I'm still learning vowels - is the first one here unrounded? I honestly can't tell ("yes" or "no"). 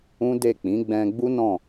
no